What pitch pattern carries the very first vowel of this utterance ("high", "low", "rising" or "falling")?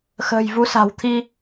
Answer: low